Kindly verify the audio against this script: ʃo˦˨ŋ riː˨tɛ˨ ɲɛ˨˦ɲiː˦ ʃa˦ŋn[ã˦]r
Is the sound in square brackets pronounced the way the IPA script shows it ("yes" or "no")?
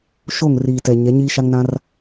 yes